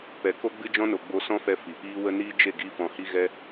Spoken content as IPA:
p ɛ˨ k o˦ ɡ͡b ɨ˦ d͡ʒ ɔ̃˦ n o˨ ɡ͡b o˧ s ɔ̃˦ f ɛ˧ f i˨ p iː˦ w ə˦ n iː˦ d͡ʒ e˦˨ ɡ i˦ f ɔ̃˧ h i˦ ɣ ɛ˦

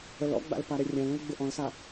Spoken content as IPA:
ə l ɔ̰ ɡ͡b a̰ l p a ɾ e rʲ ã l ẽ l ɡ͡b ɪ ʔ ɔ̃ l s a

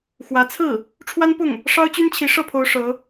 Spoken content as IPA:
x w ä˧˥ t͡sʰ ɹ̩˥˩ | ʈ͡ʂʰ w a˥ n p ʊ˥˩ ŋ | ʂ ɑ˥ ʊ̯ t͡ɕ y˥ n t͡ɕʰ i˧˥ ʂ ɤ˥˩ pʰ o˧˥ ʊ̯ ʂ ɤ˧˥

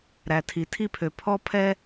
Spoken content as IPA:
ɾ æ˨ tʰ i˨ tʰ i˦˨ pʰ ø˨ pʰ ɔ˧ pʰ ɛ˧

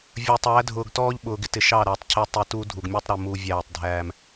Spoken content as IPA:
vʲ ə˞˨ tˤ æː˨˦ dʱ ʊː˨ ɡ t ɔː˦ ʎ ɓ ʊː˨ ɡ ɪ˦ t ɪ˨ ʃ ɑ˦˨ ɾ æ˨ tˤ cʰ ɪ˦ tˤ ɪ˦˨ t uː˦ dʱ u˨ ɡ mʲ ə˞˦ tˤ ɾ ə˨ m u˨ vʲ æː˦˨ tˤ dʱ æː˦ m

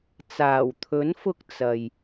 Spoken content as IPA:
t͡s aː˨˩ w t̪ʰ ɵ˨˥ n f ʊ˧ k̚ t͡s ɐ˨ j

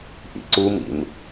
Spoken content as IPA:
ʔ ḭ ǀ u m ḭ n

